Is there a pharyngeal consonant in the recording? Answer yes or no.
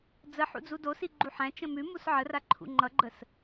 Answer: yes